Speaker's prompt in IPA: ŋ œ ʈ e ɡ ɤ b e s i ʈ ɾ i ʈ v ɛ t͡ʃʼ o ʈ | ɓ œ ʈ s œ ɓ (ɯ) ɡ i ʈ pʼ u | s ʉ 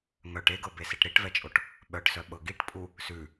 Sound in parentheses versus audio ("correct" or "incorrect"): incorrect